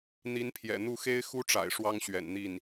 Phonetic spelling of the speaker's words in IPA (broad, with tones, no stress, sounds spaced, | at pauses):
n̪ i˧˥ n pʰ j ɛ̰˨˩ n̪ u˥˩ x e˥ ɪ̯ x u˥ ʈ͡ʂ a̰˨˩ ɪ̯ ʂ w ɑ˥ ŋ ɕ ɥ ɛ̰˨˩ n n̪ i˥˩ n